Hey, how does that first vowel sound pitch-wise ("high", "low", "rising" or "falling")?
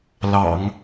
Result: low